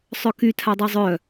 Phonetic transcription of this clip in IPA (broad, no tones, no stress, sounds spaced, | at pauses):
sˤ œ k y tʰ a dˤ ɛ zˤ œ